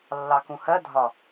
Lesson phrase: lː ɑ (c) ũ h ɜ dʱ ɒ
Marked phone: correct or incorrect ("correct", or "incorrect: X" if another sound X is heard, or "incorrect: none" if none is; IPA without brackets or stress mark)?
incorrect: k